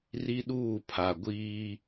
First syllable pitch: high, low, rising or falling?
high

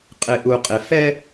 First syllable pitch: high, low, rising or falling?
low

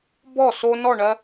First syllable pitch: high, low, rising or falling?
falling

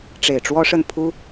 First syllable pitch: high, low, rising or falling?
low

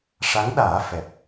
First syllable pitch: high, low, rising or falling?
rising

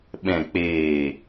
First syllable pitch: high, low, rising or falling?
low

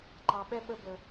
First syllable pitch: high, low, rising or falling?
low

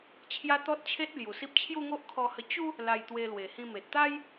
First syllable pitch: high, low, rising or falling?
high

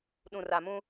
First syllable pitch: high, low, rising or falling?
low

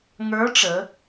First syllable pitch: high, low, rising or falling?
rising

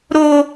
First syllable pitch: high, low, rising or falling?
high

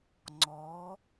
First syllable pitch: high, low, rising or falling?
rising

